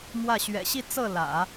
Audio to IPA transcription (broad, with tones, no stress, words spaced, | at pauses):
mwä˥˩ ɕɥɛ̰˨˩ɕi˥˧ t͡sɤ˥˩lä̰˨˩˦